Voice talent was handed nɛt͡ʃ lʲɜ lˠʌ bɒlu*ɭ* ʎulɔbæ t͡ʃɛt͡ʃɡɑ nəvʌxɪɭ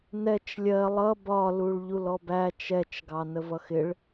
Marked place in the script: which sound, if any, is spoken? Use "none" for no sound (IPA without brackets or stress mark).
ɭ